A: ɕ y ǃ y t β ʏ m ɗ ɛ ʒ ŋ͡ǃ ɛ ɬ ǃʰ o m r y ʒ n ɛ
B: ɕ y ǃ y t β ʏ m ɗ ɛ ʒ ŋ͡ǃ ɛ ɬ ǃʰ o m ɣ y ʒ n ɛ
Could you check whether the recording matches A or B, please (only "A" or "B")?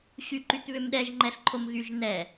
B